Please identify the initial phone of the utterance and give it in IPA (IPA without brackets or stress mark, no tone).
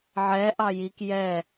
ʕ